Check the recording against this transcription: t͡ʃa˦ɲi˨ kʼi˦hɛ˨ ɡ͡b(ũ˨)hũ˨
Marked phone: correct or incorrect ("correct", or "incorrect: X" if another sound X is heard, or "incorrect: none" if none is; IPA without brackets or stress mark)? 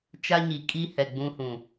incorrect: ũ˦